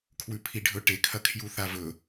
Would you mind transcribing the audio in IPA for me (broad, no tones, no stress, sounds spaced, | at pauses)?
kʰ w ʉ pʰ i ɖʱ ɵ ʈ e kʰ ɐ kʰ j u θ a v ɵ